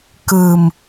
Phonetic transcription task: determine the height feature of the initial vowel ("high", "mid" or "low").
high